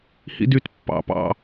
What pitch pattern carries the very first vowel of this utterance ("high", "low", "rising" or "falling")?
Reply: high